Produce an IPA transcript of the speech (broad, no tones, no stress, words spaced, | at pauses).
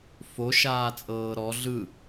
foʃaːt͡sʼɤː ɾɔ ɮɯ